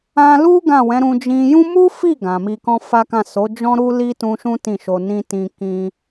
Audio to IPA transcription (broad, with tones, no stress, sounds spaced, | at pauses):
ã˧ l u˦ ɡ ã˦˨ w ɛ̃˨˦ ɾ ũ˧ d͡ʒ ĩ˧ j ũ˦ m u˦ f i˦˨ ɡ ã˨ m i˧ k ɔ̃˦ f a˦ k ã˦˨ s o˨˦ d͡ʒ ɔ̃˦ ɾ u˦ l i˦ t ũ˧ ʃ ũ˦ t ĩ˦˨ ʃ o˧ n ĩ˦ t ĩ˧ k ĩ˧